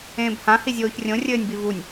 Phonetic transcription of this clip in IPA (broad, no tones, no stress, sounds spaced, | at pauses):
ẽː b h ã h i zʲ oː ç rʲ õ rʲ ɘː nʲ b i v u nʲ